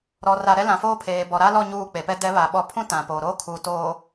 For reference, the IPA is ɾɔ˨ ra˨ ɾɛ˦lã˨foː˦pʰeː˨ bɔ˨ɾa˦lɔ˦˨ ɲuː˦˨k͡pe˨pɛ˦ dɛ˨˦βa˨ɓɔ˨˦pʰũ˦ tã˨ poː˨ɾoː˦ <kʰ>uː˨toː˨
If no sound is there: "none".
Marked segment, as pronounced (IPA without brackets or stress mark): kʰ